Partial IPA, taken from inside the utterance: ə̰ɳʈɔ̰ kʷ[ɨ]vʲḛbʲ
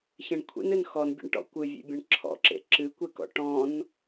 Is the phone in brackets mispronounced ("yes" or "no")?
no